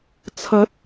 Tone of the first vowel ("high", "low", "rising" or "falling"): rising